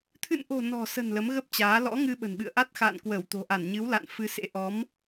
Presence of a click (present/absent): absent